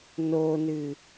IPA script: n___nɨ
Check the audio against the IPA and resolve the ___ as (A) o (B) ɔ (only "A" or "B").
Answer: A